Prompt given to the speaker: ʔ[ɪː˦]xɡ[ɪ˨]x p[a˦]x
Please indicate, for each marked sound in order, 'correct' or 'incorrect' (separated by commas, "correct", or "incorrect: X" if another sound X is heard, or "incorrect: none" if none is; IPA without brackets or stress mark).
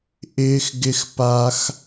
correct, incorrect: ɪ˦, correct